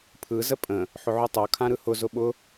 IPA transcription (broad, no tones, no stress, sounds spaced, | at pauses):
pʰ ɯ z ə pʼ ə̃ | ħ ʊ ʕ o tˤ o kʰ ã ɾ ɯ h ʊ z ʊ ɓ ʊ